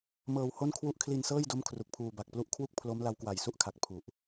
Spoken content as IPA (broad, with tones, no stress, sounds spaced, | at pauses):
m ɤː˧ w h o˥˩ n kʰ w u˦˥ ʔ kʰ l i˧ n s ɤː˥˩ j d o˦˥ m kʰ r u˨˩ k̚ pʰ uː˧ b a˨˩ k̚ p l u˥˩ ʔ kʰ w u˥˩ k̚ pʰ l o˦˥ m l a˦˥ w k w a˨˩ j s u˥˩ ʔ kʰ a˨˩ k̚ pʰ u˨˩ ʔ